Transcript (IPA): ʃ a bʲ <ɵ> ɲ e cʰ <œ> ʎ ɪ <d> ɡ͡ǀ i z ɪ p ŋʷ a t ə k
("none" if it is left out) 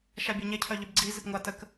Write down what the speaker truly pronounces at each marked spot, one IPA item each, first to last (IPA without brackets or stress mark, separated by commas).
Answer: œ, œ, b